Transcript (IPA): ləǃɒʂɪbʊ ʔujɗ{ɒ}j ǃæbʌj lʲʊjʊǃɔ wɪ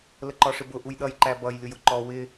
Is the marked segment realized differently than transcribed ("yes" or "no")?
yes